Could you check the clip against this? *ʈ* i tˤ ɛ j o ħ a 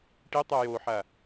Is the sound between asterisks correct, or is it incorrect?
correct